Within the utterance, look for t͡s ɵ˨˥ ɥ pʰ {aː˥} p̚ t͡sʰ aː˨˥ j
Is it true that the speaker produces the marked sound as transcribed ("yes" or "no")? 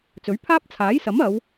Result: yes